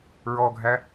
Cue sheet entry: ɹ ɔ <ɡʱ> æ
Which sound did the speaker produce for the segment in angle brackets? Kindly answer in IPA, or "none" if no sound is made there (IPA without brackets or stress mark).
ɡʱ